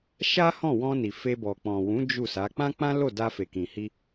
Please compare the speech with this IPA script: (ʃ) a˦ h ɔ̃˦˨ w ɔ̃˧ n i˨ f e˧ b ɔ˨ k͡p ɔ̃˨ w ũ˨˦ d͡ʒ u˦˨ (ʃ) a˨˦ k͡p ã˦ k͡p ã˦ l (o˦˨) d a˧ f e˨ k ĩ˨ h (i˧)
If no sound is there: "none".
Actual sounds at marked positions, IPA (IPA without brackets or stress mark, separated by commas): ʃ, s, o˦˨, i˧